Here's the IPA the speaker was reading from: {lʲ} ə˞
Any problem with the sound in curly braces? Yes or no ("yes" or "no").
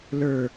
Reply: yes